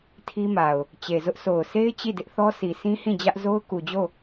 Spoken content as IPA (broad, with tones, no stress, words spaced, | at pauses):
tʰi˦ma˨ʊ̯ | t͡ɕe˨zʊ˦ʔ so˨ʊ̯sʰe˦ɪ̯ t͡ɕi˦˨dɪ˦ʔθɔ˦ si˨sʰĩ˦ hĩ˦˨d͡ʑä˦ʔ zo˦ʊ̯ku˨d͡ʑo˦˨